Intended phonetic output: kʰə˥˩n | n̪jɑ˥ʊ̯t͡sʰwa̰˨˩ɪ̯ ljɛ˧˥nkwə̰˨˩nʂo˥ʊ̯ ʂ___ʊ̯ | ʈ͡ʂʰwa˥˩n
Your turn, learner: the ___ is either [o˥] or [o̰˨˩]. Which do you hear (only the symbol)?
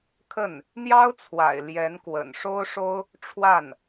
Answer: o˥